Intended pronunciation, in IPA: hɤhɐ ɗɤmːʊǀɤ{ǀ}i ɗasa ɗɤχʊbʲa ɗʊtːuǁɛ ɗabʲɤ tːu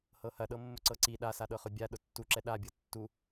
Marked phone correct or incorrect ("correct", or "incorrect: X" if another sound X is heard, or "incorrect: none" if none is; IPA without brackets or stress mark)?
correct